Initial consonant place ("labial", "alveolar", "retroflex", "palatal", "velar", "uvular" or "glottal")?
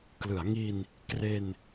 velar